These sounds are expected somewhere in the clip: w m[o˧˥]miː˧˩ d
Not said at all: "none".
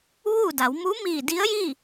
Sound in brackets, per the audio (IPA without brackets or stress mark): u˧˥